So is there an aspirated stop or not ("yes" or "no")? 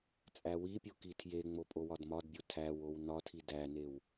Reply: yes